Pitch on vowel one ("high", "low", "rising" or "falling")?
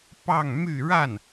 falling